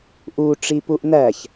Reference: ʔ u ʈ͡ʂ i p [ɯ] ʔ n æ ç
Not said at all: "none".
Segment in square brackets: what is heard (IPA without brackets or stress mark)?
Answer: u